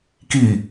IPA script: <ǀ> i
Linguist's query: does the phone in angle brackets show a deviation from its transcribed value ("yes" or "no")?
yes